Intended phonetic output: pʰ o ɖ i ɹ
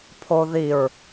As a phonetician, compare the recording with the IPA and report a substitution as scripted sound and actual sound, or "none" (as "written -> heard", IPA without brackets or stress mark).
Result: ɖ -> ð